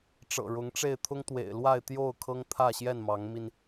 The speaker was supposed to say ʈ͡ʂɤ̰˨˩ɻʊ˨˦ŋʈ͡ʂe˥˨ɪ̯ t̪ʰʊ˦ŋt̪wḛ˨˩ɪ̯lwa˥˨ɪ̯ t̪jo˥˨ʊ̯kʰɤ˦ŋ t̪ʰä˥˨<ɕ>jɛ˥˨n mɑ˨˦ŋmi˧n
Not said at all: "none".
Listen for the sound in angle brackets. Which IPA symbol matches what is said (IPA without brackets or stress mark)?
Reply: ɕ